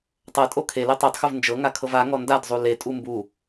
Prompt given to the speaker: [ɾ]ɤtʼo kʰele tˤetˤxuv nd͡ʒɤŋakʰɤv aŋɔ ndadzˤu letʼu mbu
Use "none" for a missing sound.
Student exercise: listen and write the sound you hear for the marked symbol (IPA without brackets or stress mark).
tˤ